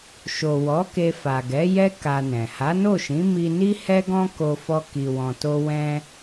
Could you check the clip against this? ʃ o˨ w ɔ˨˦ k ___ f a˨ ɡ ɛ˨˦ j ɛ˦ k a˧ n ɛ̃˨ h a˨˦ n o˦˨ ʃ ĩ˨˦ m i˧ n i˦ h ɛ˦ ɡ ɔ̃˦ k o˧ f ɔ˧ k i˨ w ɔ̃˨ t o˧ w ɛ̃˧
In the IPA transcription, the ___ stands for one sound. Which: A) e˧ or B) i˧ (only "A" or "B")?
A